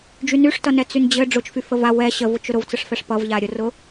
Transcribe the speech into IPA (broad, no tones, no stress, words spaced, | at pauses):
d͡ʒynyʂtʌnɛ t͡synd͡ʑɘ ɖ͡ʐʊt͡ʃfy fəva wɛ ɕəvʊt͡ʃ ʊɾʊvt͡səʂfɛʂ pʌvʎa ɾʲʊrʊ